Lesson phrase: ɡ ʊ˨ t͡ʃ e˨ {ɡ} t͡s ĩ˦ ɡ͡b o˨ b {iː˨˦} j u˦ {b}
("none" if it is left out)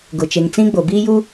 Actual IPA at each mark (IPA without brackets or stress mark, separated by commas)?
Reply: ŋ, iː˦, none